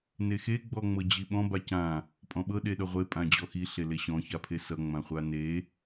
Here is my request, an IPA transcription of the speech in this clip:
n e x e ɡ͡b ɔ ŋ͡m ɤ d͡ʑ i ɓ ɔ̃ b a c ã | pʼ ɔ̃ ɓ ɤ ɗ e ɗ ʌ ʁʷ e pʼ ã d͡ʑ ɔ x i ɬ e l e ɕ ɔ̃ ç a pʰ e s ʌ ŋ͡m ã χʷ a n e

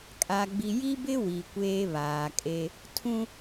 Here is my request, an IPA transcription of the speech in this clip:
kʼ a˨ ɡ͡b i˨ j i˦ b ɪ˦ w i˨ kʷ eː˦ β aː˨ kʼ e˦ | tʰ ũ˦

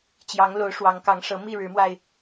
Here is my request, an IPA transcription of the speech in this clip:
t͡ɕ j ɑ˨˦ ŋ l o˨˦ ʊ̯ ʂ w ɑ˨˦ ŋ k ɑ˨˦ ŋ ʂ ɤ˨˦ m i˥˨ ɻ ɻ̩˨˦ m w a˧ ɪ̯

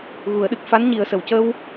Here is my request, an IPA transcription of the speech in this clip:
ɣ u˨˩˦ ə̯ ɗ ɨ˨˩ k̚ f a˧˥ n ɲ i˨˩˦ ə̯ s ə˨˩ w c ə˧ w

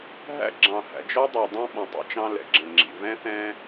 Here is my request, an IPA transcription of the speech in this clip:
ɦ æ̰˦ ɡ͡ǁ ɑ̃˨ h æ̰˨ d͡ʒ ɔ˦ dˤ æ˨ dˤ ɑ̃˦ ɓ ɔ̃˨ tˤ ɛ̰˦ t͡ʃ ɑ̃˦ l ɛ̰˨ ɡ͡ǁ ə̃˨ ŋ͡ǁ ḭ˨ v ɛ̃˦ θ ɛ̃˦

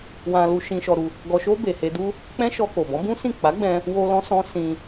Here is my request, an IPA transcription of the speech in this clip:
w ã˧ l u˧ ʃ ĩ˧ ʃ ɔ˧ ɾ u˧ | ɡ ɔ˧ ʃ o˦ b e˧ h e˦ d u˦ | k͡p ɛ̃˦ ʃ ɔ˧ k o˨ b ɔ̃˨˦ b ũ˦ s ĩ˦˨ k͡p a˨˦ ɡ͡b ɛ̃˧ | w o˧ l ɔ̃˦ s ɔ̃˦ s ĩ˧

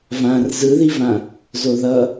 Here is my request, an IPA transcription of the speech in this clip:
v ã r z ɯ ð i v ã | z o ð ʌ

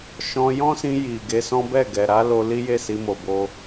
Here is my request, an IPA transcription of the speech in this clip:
ʃ ɔ̃˧ j ɔ̃˦ s ĩ˧ j i˨ ɡ e˧ s ɔ̃˦ b ɛ˦˨ ɡ ɛ˨ ɾ a˨˦ l o˧ l i˦ j e˦˨ s i˧ m o˨ b o˧

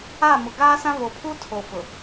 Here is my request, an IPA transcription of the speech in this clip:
a˦˨ m ʊ˨ ɡ aː˦ s ã˦ β o˨ pʰ u˦ tʰ o˨ f ʊ˨

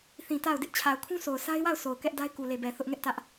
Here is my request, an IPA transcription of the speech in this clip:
θ ĩ˨ t a˦˨ ʊ̯ d ɪ˦ ʔ t͡ɕʰ a˨ ʊ̯ kʰ ũ˦ sʰ o˨ ʊ̯ sʰ a˦ ɪ̯ w a˦˨ ʊ̯ s o˨ ʊ̯ k ɛ˦ ʔ d a˦ ɪ̯ k u˨ l e˨ b ɛ˨ θ ʊ˦ ʔ ŋ ɛ˦ ʔ t ä˦ ʔ

